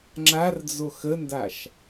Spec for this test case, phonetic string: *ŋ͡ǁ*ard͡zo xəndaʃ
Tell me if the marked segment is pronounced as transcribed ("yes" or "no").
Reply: yes